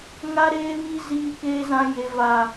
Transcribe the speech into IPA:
ŋ a˦ ɾ eː˦ β i˦ z iː˦ k eː˦ z ã˦ j e˦ v a˦

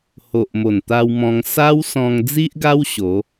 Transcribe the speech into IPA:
h o˨ ʔ m o˨˩ n t̪ a˧ w m ɔ̃˧ ŋ s a˦ w s ɔ̃˧ ŋ d͡z i˦ ʔ ɡ a˦ w ɕ o˨˦

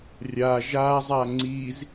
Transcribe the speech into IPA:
rʲ a ʒ a zˤ a ŋ͡ǀ i z

